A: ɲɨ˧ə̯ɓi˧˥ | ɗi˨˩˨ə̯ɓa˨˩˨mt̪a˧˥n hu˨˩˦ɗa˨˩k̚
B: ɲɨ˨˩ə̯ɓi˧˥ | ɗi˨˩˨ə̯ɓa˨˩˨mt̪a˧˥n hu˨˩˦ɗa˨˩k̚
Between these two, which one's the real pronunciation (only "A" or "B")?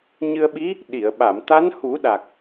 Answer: A